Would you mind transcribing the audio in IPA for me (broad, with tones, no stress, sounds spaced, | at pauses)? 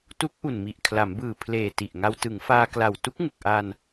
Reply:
t u˦˥ k̚ ʔ u˨˩ n m i˨˩ ʔ kʰ l a˩˦ m b ɯː˨˩ pʰ l eː˨˩ t i˨˩ ʔ ŋ a˧ w t ɯ˩˦ ŋ f aː˧ k l a˨˩ w t u˦˥ k̚ ŋ u˨˩ k̚ ʔ aː˧ n